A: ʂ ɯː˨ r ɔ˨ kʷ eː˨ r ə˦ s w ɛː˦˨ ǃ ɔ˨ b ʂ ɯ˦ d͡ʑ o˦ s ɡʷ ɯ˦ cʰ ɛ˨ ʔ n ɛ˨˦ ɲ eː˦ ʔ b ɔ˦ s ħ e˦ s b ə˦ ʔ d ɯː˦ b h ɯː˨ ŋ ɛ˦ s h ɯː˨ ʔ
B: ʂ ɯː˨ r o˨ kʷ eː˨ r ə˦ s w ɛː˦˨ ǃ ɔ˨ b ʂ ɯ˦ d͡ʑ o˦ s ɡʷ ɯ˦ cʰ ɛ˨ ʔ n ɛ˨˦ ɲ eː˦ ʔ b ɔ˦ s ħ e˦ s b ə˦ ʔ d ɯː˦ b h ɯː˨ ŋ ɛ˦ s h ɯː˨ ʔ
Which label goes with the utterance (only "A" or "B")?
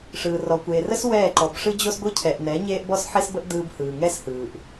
A